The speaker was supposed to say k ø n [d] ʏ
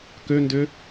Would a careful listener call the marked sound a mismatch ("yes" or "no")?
no